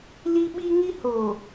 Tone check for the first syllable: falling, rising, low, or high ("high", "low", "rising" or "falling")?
high